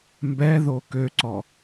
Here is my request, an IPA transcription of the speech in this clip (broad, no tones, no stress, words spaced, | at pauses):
mbɛðo køǀɔ